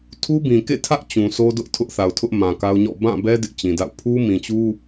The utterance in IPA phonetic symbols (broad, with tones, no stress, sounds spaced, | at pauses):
tʰ u˦ b ĩ˨ k ḛ˦˨ tʰ ä˦ ʔ t͡ɕ ũ˨ sʰ o˦ d ʊ˦ ʔ tʰ ʊ˦ ʔ θ a˨ ʊ̯ tʰ ʊ˦ ʔ m ã˨ k a˦ ʊ̯ ɲ ɔ̰˦˨ b ã˦˨ b ɛ˦ d ɪ˦ ʔ t͡ɕ ĩ˨ d a̰˦˨ ʊ̯ pʰ u˦ m ĩ˨ t͡ɕ u˦